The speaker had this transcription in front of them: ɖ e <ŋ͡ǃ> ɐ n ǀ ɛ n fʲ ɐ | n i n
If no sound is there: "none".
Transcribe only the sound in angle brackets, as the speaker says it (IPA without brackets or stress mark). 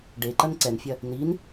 ǃ